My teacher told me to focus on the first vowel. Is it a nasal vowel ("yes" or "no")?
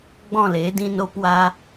yes